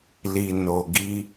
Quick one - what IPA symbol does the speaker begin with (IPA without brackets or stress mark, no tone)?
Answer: l